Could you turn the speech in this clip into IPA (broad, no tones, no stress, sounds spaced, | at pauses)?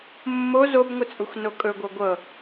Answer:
mː o z o b ŋʷ ɘ t͡sʼ u x n o kʼ ɵ ɡʷ ɤ ɡʷ ɤ